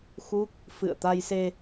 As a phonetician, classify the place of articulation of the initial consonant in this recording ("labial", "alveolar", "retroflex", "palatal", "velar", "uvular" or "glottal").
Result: velar